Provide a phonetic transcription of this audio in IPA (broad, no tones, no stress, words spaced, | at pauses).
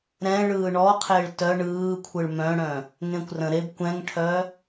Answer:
ɾɛ̃ɭɯː ɳɔqʰɪːɭ tœ ɳɯːkʷʰɯɭ mœ̃ɽœ̃ | ŋẽkʷrə̃ɾeb kʷɛ̃ŋʈʰœ